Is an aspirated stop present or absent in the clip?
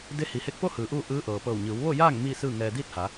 absent